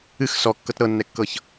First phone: ɨ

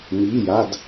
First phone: m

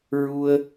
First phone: ɹ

